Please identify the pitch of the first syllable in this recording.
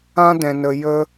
high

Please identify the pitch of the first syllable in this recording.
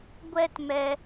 high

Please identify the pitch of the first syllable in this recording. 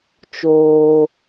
low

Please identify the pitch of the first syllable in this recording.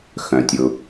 low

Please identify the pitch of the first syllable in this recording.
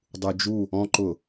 low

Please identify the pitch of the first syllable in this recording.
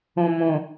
low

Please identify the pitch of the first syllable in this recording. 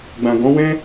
low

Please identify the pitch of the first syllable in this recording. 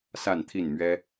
falling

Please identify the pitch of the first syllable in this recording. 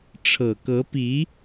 low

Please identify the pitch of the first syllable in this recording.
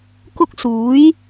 high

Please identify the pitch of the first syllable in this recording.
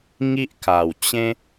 high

